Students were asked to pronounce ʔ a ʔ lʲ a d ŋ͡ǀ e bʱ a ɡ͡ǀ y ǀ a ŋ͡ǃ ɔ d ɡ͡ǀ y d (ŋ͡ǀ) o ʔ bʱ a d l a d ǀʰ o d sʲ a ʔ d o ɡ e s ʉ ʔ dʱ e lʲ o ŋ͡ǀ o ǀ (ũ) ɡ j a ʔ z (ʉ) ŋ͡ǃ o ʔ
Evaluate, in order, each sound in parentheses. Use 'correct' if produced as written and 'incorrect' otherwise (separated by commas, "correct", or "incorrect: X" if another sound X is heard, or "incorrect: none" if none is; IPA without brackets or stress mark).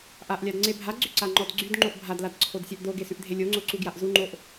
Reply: incorrect: ŋ͡ǃ, incorrect: u, incorrect: u